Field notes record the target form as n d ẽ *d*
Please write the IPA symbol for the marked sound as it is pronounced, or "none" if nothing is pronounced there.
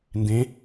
none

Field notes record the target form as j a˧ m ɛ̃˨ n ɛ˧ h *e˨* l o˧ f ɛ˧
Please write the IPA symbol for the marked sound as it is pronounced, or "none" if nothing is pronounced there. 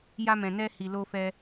i˨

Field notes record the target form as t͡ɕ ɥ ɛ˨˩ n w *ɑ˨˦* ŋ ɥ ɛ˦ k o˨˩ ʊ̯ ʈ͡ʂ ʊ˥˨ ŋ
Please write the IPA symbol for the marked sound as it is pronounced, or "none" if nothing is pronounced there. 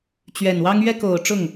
ɑ˦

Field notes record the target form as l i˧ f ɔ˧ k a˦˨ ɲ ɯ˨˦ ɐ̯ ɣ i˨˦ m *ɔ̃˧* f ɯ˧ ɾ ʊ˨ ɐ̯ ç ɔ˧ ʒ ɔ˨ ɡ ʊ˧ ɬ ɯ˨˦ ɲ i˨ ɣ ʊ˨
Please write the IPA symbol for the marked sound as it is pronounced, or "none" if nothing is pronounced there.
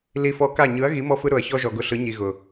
ɔ˧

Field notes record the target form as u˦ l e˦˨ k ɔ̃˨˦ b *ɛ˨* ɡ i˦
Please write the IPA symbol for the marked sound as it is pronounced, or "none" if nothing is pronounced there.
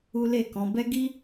ɛ˦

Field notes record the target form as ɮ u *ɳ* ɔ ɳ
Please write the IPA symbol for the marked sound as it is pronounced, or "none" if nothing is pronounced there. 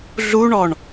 ɳ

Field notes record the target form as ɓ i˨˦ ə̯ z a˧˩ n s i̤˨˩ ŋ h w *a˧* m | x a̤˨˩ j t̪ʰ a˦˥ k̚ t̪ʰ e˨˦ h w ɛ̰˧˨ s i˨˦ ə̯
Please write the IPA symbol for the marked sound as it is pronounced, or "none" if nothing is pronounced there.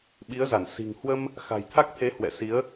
ə˧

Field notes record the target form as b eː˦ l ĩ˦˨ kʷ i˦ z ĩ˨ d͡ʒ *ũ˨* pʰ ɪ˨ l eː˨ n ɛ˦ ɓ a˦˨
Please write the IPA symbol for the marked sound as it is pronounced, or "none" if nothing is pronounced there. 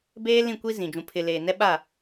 ũ˨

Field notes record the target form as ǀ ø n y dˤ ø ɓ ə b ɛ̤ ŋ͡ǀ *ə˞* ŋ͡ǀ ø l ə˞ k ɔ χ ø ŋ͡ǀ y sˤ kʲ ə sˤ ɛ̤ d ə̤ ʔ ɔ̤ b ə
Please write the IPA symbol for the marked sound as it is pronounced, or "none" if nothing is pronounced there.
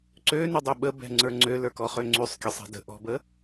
ə˞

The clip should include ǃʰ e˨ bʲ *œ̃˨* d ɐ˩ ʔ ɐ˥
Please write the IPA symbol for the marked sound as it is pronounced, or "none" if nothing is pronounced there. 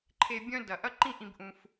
œ̃˦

